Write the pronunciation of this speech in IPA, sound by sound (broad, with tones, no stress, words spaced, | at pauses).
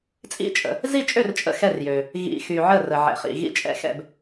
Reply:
t͡sʼḭ˥˨t͡ʃʼə̰˨ | zi˥˨t͡ʃʼø˥˨r t͡ʃʼə̰˥˨xɛ˥˨rjø˨ | ɣḭ˨xy˨ ʕə˥˨rə˨ ʕɛ̰˨χḭ˨ ɣḭ˥˨t͡ʃʼɛ̰˥˨xɛ̰˥˨b